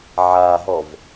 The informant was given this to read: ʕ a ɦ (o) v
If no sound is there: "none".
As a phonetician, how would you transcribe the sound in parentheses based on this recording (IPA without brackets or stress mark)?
ɔ